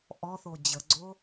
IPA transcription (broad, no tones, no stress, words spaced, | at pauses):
ʔɔθo d͡ʑəɡ͡ǀo